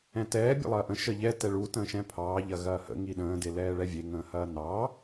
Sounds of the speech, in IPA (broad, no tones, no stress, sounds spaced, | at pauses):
ɛ̃ t ɛː bʲ ə̰ lˠ ɐː ʔ ə̃ ʃ ə ʎ ɛ t ɛ ɭ u t ə̃ː ʃ ɛ̃ pʰ ɑː ʎ ɐ ɣ ɐː h ə̰ ŋ i ɗ ə̃ː d e l ɛː ɭ ɛ vʲ e ŋ ə̃ː h ɐː n ɑː